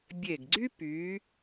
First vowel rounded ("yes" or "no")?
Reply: no